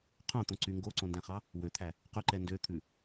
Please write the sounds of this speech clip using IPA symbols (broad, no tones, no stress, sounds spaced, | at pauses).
qʰ õ t̪ õ ǀ y ŋ ɡ o ǀ õ n d æ̃ χ ɑ | w ø t̪ʰ æ | q ɵ ǃ ɛ n d ø t̪ʰ ʉ